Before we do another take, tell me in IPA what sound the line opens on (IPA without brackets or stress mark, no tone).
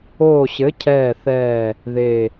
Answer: oː